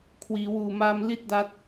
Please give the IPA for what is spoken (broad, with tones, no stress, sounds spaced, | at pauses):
kʰ w iː˩˦ w uː˨˩ m aː˧ m l i˥˩ t̚ d a˦˥ t̚